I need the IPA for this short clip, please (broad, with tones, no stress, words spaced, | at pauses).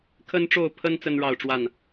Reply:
kʰə˦nʈ͡ʂo˥˨ʊ̯pʰə˦n t͡sə˦nɻɑ˥˨ʊ̯ʈ͡ʂwa˥˨n